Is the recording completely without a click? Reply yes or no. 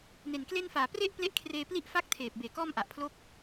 yes